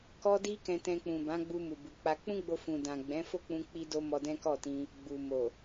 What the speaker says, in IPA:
k ɔ˦ d i˦ k ɛ̃˧ t ɛ̃˧ k͡p ũ˨ b ã˨˦ ɡ͡b u˧ m u˨ b u˨ k͡p a˧ k͡p ũ˦ ɡ͡b o˧ f ũ˨ d ã˨ ɡ͡b ɛ̃˨˦ f o˦˨ k͡p ũ˧ k͡p i˦ d o˦ m ɔ˧ d ɛ̃˦ k ɔ˦˨ t ĩ˧ | ɡ͡b u˨ m o˨

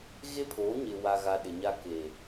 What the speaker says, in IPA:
ɣ e˦ pʰ oː˨˦ ɲ ɪ˨ w a˨ ɣ a˨ ɗ ɪ˨ ɲ a˦ k e˨

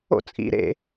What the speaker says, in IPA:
o̰ t͡sʼ ḭ ɾ ḛ

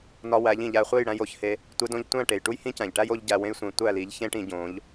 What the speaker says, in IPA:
n ɒ˧ w æ˨˦ ʎ ĩ˨ ʎ æ˧ χʷ e˦˨ j ɽ æ̃˧ j o˧ ç h e˧ | tʷ e˧ d õ˧ ʎ tʷ æ̃˦˨ ʈ e˨ j ʈ u˦ j h ĩ˦ c æ̃˨ ʎ ʈ æ˦ j o˦ ʎ ɟ æ˧ w ẽ˦ j sʷ ẽ˧ tʷ æ˦˨ l i˨˦ ʎ ç ẽ˦ ʈ ĩ˧ ɟ õ˨˦ ʎ

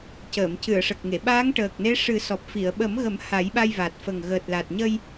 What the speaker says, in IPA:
c əː˨˩˨ m c ɨ˨˩˨ ə̯ ʂ ə˨˩ k̚ ŋ e˨˩˨ ɓ aː˧˥ ŋ ʈ əː˨˩ k̚ n e˧˥ ʂ ɨ˨˩˦ s ɔ˨˩ p̚ f i˨˩˨ ə̯ ɓ ə˨˩˦ m ɣ ə˨˩˦ m h a˨˩˦ j ɓ a˧ j v a˨˩ t̚ f ə˨˩ ŋ ɣ əː˨˩ t̚ l a˨˩ t̚ ɲ ə˧ j

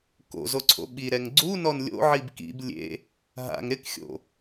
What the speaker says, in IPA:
k o̰ z o ǀʰ o̰ ɓ i ɾ ɛ ŋ ɡ͡ǀ u n ɔ n lʲ o̰ ʕ i b k ḭ b lʲ ḛ | ɦ a̰ ŋ ɾ ɪ k xʲ o̰

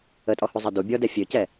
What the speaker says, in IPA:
ə tʼ ɔ h u zˤ ə d u bʲ ɔ d ɛ fʲ ø c ɛ

